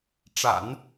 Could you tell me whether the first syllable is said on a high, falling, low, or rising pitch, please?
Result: low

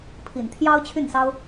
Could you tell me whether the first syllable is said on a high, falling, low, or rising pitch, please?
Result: low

